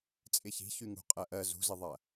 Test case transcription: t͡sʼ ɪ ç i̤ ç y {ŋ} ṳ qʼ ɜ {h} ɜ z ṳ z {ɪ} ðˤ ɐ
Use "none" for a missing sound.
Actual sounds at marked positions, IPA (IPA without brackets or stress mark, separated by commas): ŋ, ʔ, ɪ